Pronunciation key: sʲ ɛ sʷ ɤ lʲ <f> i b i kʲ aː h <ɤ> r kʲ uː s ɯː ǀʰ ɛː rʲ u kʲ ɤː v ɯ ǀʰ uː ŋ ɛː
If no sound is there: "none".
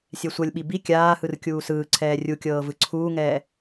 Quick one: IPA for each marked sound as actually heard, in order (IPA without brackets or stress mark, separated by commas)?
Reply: ɓ, ɯ